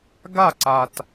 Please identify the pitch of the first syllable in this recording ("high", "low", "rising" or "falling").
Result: falling